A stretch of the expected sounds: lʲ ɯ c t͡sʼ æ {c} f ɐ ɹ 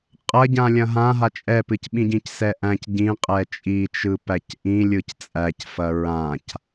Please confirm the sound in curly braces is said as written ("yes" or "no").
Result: yes